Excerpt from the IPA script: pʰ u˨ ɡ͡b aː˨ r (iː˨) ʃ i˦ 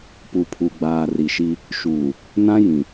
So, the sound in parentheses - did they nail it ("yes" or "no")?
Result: no